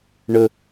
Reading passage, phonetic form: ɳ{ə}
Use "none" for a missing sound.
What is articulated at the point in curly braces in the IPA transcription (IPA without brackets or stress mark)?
ə